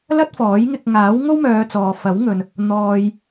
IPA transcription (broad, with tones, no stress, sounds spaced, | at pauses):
l ɐ˥ t̚ f ɔː˨˥ j ŋ ɪ˧ k̚ ŋ aː˨˥ w ŋ o˥ w m œː˨˧ t͡s ɔː˧ f ɐ˨˥ w ŋ ɵ˨ n | n̪ ɔː˧ j